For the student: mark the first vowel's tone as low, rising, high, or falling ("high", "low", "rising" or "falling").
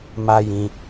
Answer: high